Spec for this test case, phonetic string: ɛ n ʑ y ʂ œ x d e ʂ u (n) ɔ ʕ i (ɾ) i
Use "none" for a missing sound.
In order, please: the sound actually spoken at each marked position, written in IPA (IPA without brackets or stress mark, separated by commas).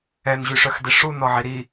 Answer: n, ɾ